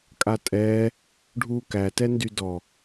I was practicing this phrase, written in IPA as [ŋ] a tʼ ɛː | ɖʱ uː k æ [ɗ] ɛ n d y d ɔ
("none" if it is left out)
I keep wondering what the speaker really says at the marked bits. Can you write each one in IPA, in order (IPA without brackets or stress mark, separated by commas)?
kʼ, t